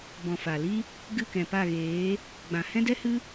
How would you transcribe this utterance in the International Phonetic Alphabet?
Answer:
b ɔ̃˨ f a˨ l i˦ | ɡ ɨ˦˨ k ɛ̃˨ p a˦˨ ɣ eː˨˦ | ɡ͡b ã˨ h ɛ̃˦ d ɛ˦ h ɨ˦

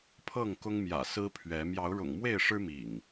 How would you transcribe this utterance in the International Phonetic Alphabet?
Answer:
pʰ ɤ˥˨ ŋ k ʊ˦ ŋ m j ä̰˨˩ s ɹ̩˦ pʰ ɥ ɛ˨˦ m j ɑ˨˦ ʊ̯ ɻ ʊ̰˨˩ ŋ m w e˥˨ ɪ̯ ʂ ɻ̩˦ m ḭ˨˩ ŋ

